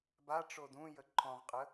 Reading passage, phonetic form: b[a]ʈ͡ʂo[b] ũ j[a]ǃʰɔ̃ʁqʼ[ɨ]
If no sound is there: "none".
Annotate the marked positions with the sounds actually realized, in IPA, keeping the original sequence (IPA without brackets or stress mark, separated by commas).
a, d, ə, ə